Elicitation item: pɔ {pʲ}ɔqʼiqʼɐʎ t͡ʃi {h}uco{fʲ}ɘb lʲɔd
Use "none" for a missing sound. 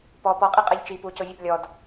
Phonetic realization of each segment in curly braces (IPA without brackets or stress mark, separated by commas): p, p, vʲ